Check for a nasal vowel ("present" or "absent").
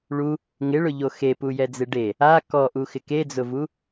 absent